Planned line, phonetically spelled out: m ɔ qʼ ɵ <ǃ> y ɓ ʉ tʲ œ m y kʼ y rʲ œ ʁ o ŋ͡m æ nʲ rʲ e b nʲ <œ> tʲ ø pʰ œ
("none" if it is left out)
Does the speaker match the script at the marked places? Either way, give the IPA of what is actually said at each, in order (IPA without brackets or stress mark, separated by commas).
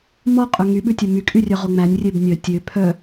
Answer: ŋ, œ